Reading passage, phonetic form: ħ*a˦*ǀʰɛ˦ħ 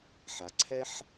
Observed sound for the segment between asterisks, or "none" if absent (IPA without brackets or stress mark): a˨